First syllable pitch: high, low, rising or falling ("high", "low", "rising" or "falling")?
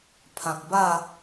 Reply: low